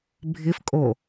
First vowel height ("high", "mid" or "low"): high